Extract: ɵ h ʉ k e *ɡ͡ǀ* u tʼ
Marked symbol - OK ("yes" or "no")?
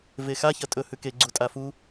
yes